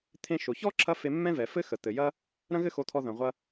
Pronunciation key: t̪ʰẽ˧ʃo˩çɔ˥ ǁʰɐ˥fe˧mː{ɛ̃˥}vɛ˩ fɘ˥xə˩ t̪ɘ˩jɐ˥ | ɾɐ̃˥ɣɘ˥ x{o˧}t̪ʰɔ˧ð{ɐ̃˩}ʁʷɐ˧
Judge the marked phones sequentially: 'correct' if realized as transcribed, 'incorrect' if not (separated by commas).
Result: correct, correct, correct